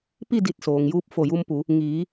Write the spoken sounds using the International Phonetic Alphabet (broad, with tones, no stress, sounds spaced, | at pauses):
p i˥˨ d i˧˩ t̚ s oː˩ ŋ j uː˧ p̚ f o˧˩ j u˧ m p u˩˧ | ŋ iː˩˧